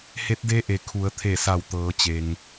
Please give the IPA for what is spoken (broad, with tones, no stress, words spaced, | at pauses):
he˧˥t̚de˧˥ʔe˩ kʰu˩˧ə̯t̪ʰe˧˩sa˧˩w t̪ɤː˩˧t͡ɕe˩ŋ